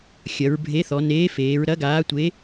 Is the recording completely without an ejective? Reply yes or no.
yes